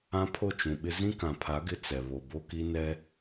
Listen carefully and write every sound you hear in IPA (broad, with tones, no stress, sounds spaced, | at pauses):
ã˦ pʰ o˦˨ t͡ʃ ũ˨ ɓ ɪ˦ z ĩ˦ k ã˨ pʰ a˨˦ ɡ ɪ˦ t͡s ɛ˨ β o˨ b o˦ k i˦ n ɛ˦